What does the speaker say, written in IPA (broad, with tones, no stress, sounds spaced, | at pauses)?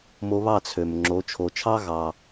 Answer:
m o˧ β ɑ˥˩ t͡sʰ ø˩ m ŋ͡ǁ o˩˥ t͡ʃʰ o˩ t͡ʃʰ ɑ˥ ɣ ɑ˩